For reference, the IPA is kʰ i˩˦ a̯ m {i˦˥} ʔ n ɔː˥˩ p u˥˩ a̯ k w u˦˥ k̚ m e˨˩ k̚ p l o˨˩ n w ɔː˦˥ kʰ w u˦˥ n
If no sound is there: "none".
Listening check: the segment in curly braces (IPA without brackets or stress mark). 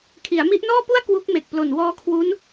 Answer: i˦˥